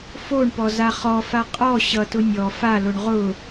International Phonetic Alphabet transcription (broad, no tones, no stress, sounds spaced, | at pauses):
f o ɳ p ɔ z a χ ɔ f a qʼ ɔ ɕ ʌ t ʊ nʲ ɔ f a l o ɳ ʁ ʊ